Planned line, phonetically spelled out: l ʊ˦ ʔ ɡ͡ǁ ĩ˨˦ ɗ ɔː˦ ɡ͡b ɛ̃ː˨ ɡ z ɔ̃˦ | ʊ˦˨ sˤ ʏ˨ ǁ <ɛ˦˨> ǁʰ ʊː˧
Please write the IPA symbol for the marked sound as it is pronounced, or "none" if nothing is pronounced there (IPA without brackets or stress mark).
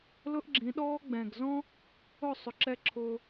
ɛ˦